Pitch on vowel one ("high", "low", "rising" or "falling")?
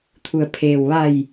low